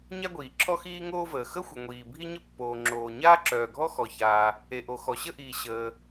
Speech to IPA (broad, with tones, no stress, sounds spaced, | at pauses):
ɲ a˥ ɡʷ iː˩ ǁʰ ɔ˥ x iː˥ ŋ oː˥ v əː˩ x ə˥ xʷ ə˩ ŋʷ iː˩ bʱ i˥ ɲ ə˥ pː oː˩ ŋ͡ǁ oː˩ ɲ aː˥ ǁ œː˩ ɡʱ ɔ˥ x ɔ˩ ç aː˩ | e˩ ʔ o˩ x ɔ˩ ɕ ə˥ ʔ iː˩ ɕ əː˩